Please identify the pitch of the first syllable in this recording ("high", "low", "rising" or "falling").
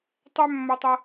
high